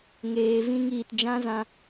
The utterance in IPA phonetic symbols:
ŋeː˨ vĩ˧ŋiː˨t d͡ʒã˦zã˧

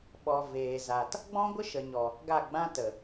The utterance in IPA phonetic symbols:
ɓɔ˨ veː˨za˨t | ɡ͡bɔ̃˦ɡʷə˦ʃə˨ɲɔ˨ | ɡa˦˨ɡ͡bã˦tə˨

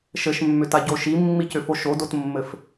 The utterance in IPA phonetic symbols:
ʃɘʃmːʏtaɟo ʃimːicʏfo ʃodotmːɘf

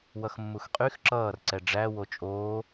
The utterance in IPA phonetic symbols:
wʌxmːuxqʼyx ǁʌːr ǀɛɖ͡ʐæ wot͡ʃʼoː

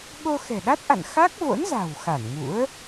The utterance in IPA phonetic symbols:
ɓo˧xɛ̤˨˩ɗa˦˥t̚ʔa̰˧˨n xa˦˥k̚vo̰˧˥nza̤˨˩w xa˧˩nŋṵ˧˥ə̯

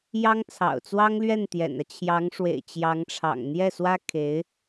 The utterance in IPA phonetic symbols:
jɑ˥ŋt͡sʰɑ̰˨˩ʊ̯t͡swɑ˥ŋlɥɛ˥˩n t̪jɛ̰˨˩nä˦ t͡ɕʰjɑ˧˥ŋʂwḛ˨˩ɪ̯ t͡ɕjɑ˧˥ŋʈ͡ʂʰɑ̰˨˩ŋ n̪jɛ˥˩swä˥ kʰe˧˥ɪ̯

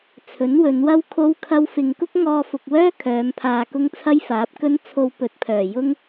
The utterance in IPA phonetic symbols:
t͡sʰɵ˨˥nwɵ˨˧nwɐ˥w kʰo˥wkʰɐ˥w fɪ˧ŋ kʊ˥k̚ŋɔː˧fʊ˨k̚wœː˥ kʰœː˨˧mpʰaː˧kʊ˥ŋ t͡sʰɐ˥jfaː˨˥p̚kɵ˥n t͡sʰo˧wpɵ˨t̚pʰœː˨˩ jʊ˥ŋ

